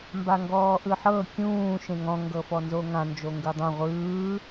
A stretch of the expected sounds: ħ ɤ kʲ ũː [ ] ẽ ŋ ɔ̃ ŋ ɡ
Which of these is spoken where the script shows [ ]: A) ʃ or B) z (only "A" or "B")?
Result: A